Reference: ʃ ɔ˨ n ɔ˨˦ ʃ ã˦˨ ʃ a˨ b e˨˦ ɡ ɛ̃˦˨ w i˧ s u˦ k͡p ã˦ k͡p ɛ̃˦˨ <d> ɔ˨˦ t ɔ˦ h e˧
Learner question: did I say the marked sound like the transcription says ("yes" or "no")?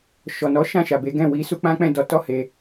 yes